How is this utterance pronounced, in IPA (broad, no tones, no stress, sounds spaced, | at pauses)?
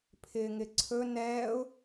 pʰ ɪː ŋ ɪ ǀʰ ɵ n ɛː ʊ̯